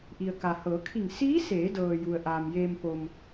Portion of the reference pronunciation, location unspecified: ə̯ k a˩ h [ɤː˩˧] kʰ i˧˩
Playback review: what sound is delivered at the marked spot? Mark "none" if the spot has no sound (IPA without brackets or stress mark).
ɤː˩˧